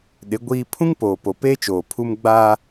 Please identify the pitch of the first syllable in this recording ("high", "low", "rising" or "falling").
rising